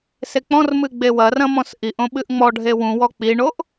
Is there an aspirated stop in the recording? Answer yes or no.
no